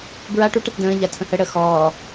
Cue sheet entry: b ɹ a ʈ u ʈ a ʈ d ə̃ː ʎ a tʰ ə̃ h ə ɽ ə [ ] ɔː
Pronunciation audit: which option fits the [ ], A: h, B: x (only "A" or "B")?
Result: B